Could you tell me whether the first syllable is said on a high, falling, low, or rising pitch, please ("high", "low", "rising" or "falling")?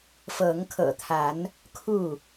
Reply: rising